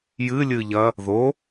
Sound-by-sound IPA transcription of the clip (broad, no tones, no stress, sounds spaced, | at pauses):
j ɨ lʲ ɨ ʎ ɐ | ð o